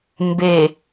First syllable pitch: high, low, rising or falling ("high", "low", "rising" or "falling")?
low